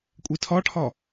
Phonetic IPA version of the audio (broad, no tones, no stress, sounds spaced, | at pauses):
kʷʼ i tʰ ɒ ʈʰ ɒ